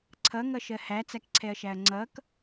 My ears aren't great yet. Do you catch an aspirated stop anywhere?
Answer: yes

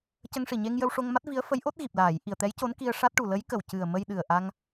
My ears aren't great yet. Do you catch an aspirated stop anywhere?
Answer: no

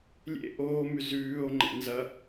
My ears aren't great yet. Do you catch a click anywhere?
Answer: yes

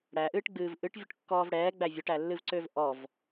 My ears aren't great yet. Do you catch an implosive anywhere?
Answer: no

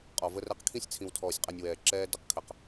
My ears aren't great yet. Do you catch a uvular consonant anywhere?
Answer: yes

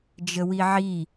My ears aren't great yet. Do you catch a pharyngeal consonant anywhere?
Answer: yes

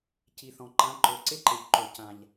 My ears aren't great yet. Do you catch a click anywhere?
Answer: yes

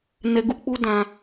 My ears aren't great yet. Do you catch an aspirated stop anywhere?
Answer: no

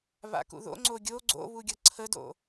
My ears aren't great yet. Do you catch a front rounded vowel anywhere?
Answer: no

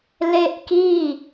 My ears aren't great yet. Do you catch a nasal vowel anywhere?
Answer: no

